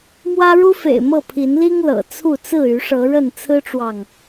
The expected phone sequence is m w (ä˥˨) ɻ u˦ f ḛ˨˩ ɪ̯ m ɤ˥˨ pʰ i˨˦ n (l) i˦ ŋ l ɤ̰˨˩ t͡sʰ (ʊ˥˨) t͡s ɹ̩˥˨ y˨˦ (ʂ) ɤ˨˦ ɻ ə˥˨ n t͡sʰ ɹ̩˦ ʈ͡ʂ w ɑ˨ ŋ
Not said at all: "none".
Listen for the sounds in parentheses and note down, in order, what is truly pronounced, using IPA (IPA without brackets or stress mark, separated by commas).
ä˦, l, u˥˨, ʂ